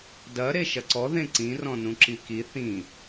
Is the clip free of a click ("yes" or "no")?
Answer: no